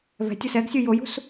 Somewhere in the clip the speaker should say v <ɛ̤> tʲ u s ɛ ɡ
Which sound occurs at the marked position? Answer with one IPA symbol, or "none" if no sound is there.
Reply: ɛ̤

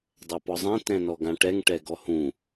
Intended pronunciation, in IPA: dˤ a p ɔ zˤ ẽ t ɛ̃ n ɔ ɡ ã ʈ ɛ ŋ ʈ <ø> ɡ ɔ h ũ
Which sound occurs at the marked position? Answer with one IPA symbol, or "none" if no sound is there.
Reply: ɛ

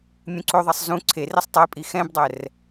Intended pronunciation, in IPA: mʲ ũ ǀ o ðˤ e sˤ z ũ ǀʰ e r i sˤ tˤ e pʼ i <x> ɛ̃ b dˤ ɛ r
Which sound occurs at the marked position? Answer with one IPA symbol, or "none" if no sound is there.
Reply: x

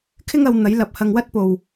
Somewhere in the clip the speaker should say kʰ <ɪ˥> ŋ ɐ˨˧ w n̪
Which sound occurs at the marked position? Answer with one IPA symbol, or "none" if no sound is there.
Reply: ɪ˥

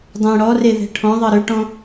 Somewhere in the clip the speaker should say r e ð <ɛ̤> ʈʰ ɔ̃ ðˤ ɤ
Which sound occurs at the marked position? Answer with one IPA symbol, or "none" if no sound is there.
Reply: ɛ̤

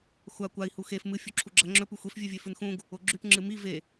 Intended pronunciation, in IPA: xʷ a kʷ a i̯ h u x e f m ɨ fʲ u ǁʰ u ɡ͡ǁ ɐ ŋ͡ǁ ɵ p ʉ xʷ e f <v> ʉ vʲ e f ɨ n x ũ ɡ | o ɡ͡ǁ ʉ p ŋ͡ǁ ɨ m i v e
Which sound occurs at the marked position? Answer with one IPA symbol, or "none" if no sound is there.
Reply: vʲ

